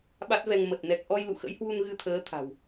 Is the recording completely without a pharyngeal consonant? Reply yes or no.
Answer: yes